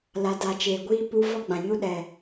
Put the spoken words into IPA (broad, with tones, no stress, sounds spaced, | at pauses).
l a˨ d a˨ t͡ʃ eː˨ ɡʷ iː˦ p u˧ v ɔ˦ ɡ͡b ã˨ ɲ u˦ ɗ ɛ˨